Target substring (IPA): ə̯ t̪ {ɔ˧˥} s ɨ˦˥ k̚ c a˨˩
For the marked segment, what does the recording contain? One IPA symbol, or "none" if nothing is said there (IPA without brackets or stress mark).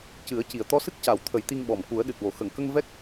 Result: ɔ˧